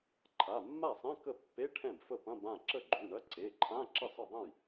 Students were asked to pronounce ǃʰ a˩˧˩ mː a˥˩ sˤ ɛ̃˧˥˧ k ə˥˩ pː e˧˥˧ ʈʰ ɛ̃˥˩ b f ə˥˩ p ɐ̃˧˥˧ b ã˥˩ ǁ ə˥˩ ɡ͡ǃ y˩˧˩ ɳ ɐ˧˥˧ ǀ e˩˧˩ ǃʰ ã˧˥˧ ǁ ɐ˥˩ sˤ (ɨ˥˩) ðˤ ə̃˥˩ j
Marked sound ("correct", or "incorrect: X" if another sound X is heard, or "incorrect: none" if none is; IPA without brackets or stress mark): incorrect: ə˥˩